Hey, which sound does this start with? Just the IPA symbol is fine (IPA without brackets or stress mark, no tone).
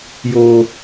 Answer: j